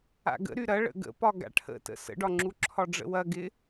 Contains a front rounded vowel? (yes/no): yes